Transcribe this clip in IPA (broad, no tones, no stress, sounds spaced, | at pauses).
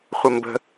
χʷ ə m b ə̤